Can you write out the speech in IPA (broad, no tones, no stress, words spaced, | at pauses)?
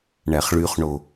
ɳæχɭyχɳo